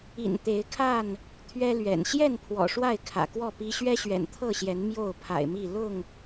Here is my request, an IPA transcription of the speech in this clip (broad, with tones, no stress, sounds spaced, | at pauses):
ḭ˨˩ n t̪ e˨˦ ɪ̯ kʰ a˥˨ n | t̪ʰ ɥ ɛ˦ l ɥ ɛ̰˨˩ n ɕ j ɛ˥˨ n pʰ w ɔ̰˨˩ ʂ w a˥˨ ɪ̯ kʰ ä̰˨˩ k w ɔ˥˨ p i˦ ɕ ɥ ɛ˦ ɕ ɥ ɛ̰˨˩ n t̪ʰ ɤ˥˨ ɕ j ɛ˨˦ n m j o˥˨ ʊ̯ pʰ a̰˨˩ ɪ̯ m i˥˨ l ʊ˥˨ ŋ